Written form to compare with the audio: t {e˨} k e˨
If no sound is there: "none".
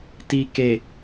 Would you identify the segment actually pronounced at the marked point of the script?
i˨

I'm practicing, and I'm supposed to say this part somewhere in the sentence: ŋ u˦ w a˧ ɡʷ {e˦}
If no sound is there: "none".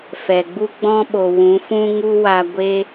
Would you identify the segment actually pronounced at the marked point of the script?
e˦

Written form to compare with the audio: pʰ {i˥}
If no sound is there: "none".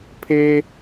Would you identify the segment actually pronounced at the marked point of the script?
e˥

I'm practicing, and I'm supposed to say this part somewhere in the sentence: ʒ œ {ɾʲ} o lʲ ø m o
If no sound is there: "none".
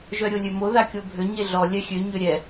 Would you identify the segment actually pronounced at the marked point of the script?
ɾʲ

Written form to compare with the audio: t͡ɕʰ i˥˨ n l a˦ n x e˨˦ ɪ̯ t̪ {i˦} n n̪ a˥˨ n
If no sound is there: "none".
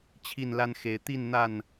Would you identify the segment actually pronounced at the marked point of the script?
i˥˨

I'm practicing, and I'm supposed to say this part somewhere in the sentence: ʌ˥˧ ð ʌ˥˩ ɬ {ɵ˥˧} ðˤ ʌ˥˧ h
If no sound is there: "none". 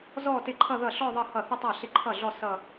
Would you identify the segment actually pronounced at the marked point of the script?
ɔ˥˧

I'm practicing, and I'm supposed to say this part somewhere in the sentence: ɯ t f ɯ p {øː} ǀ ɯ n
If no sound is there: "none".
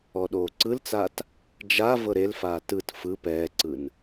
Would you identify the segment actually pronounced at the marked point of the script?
ɛː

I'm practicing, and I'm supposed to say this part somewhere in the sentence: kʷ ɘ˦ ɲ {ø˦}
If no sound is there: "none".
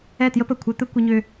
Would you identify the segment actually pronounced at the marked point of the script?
ø˦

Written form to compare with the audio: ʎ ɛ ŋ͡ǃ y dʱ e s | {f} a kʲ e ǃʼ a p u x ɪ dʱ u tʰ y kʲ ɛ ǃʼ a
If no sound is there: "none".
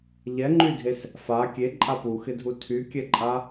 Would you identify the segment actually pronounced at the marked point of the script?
f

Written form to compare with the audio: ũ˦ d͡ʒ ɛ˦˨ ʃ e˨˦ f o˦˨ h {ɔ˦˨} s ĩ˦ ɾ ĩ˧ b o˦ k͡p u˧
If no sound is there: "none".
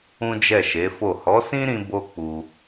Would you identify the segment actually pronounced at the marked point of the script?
ɔ˨˦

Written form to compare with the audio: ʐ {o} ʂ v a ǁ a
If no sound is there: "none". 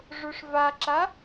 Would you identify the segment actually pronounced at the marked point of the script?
o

